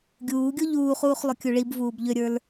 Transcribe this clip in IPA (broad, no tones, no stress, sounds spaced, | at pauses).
ɡʲ uː ɡʲ o ʎ uː χ uː χ lˠ ʏ kʲ u ɭ i b v uː b ʎ ʏ ɾʲ ə˞ l